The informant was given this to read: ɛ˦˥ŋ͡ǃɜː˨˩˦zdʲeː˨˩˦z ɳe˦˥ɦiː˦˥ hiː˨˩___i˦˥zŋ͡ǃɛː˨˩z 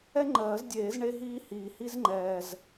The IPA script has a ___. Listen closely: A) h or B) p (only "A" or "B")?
A